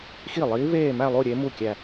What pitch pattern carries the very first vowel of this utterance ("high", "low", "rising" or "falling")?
falling